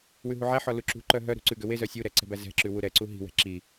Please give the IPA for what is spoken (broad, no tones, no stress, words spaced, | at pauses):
wʉɦuʕæħɔ luǁṳǃœ ɦœ ɾṳǀʉɡø wezœ sʲuɾɛ ǀɛ̤bæzɛ̤ǁʉ wuɾɛǀu ɦi̤wɛ̤ ǁi